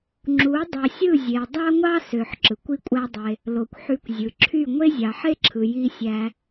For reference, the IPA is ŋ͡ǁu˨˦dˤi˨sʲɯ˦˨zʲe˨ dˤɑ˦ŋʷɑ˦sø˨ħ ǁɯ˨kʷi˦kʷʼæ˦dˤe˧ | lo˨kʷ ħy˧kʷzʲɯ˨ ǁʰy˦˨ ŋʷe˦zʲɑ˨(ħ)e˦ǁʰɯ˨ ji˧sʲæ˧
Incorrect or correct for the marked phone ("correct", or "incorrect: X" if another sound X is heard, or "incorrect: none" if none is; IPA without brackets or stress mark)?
correct